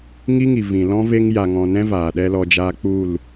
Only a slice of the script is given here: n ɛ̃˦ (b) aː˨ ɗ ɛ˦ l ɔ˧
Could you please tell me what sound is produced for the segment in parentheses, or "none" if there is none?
v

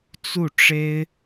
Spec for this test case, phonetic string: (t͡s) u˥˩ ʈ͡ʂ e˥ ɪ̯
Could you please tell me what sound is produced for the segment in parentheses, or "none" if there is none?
t͡s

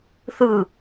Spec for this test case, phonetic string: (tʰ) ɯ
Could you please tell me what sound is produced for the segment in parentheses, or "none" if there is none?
θ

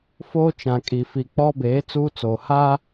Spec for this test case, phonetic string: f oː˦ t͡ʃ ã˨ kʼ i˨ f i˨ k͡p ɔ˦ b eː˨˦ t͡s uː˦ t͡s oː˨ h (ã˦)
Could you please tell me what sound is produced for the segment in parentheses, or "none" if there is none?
a˦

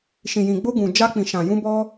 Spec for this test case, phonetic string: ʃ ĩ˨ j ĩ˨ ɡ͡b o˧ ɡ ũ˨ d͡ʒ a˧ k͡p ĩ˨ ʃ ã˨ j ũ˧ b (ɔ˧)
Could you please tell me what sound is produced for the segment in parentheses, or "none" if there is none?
ɔ˧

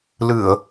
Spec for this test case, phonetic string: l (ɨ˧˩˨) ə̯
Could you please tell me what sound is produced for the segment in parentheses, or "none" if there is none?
ɨ˧˩˨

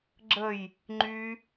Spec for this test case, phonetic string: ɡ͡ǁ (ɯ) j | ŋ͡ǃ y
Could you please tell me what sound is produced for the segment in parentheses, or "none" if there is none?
ə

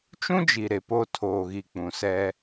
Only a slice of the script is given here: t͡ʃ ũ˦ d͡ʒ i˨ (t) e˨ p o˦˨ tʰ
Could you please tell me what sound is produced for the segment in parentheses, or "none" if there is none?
ɾ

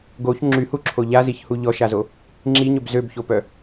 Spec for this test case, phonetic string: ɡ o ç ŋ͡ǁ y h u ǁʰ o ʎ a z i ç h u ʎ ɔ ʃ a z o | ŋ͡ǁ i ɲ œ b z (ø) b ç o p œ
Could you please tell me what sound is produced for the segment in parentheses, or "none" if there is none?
ø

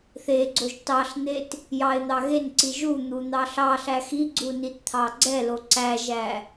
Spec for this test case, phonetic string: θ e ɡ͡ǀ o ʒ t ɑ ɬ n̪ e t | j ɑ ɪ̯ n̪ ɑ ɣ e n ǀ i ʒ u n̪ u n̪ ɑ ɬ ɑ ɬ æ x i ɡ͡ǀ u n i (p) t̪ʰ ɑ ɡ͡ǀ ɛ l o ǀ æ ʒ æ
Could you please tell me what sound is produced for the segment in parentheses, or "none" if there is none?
t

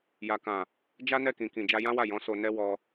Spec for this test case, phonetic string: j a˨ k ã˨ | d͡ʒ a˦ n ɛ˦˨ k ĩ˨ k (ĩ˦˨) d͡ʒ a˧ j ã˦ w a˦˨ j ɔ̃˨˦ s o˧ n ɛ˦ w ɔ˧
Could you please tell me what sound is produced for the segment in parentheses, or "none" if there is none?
ĩ˨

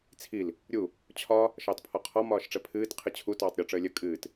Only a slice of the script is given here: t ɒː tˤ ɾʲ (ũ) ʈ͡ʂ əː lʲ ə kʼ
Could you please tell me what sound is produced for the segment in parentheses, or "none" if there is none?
u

